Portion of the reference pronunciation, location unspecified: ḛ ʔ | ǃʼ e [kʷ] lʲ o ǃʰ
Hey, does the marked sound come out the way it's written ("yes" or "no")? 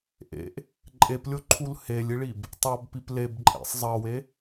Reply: no